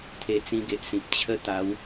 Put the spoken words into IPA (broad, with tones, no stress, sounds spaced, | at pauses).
t̪ʰ e˧ t͡s ĩ˧ ɡ e˨ ʔ s ĩ˨ p̚ t͡ɕʰ ə˦ t̪ a˨˦ w